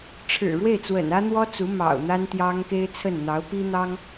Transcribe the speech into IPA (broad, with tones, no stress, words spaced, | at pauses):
ʈ͡ʂʰɻ̩˨˩ɻwe˥˩ɪ̯t͡swə̰˨˩n ä˥n̪wɔ˥t͡su˧˥ mɑ̰˨˩ʊ̯ n̪a˥nt̪jɑ˥ŋ ke˥ɪ̯t͡sʰə˥˩n n̪ɑ˧˥ʊ̯pi˥n̪ɑ˥ŋ